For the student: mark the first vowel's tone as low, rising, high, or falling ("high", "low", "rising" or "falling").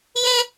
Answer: high